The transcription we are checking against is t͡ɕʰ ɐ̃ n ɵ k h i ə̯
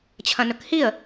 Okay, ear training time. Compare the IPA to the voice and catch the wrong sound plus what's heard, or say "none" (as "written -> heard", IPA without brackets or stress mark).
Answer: none